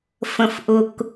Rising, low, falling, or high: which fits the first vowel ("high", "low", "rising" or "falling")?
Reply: low